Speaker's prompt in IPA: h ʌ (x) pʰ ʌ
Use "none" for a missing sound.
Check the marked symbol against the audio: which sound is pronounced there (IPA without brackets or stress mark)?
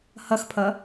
x